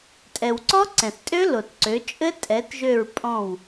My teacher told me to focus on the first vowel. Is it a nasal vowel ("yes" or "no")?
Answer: no